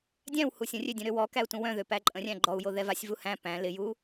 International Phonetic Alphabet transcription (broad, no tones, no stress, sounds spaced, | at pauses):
dʲ æ̃ w h u sʲ ə̃ rʲ ø dʲ œ̃ ɾ ø w ɔ k æ u̯ t ũ w œ̃ ð ø p æ ǃʼ ə̃ rʲ æ̃ ɡ͡ǃ ɔ u̯ j o ð ɛ v a sʲ v u h æ̃ p æ̃ l ɪ j u